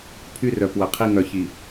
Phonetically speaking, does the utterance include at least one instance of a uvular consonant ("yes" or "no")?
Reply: yes